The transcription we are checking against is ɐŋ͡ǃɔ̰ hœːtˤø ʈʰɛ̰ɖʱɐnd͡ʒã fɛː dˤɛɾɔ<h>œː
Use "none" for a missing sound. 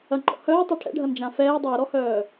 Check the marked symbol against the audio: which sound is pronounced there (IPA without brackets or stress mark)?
h